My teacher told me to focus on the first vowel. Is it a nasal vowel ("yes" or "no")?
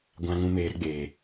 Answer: yes